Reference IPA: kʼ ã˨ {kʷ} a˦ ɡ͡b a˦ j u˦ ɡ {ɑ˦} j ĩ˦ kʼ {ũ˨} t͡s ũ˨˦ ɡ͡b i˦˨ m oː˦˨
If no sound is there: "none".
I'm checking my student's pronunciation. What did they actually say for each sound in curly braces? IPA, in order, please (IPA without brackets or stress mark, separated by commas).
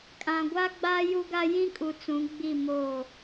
ɡʷ, a˦, u˨